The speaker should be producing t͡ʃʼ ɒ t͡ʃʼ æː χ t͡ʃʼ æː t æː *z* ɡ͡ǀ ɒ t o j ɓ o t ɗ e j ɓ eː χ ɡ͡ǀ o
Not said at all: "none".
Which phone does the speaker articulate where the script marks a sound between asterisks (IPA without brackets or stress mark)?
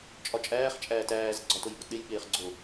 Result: z